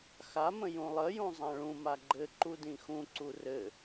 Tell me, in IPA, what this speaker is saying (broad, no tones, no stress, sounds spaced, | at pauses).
x a m ə̃ j ũ lˠ ə j ũ zˤ ã ɭ ũ m a ɡ͡ǃ ɘ ǃ u d ĩ x ũ ǀ u r ɘ